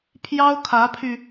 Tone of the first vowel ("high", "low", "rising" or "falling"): high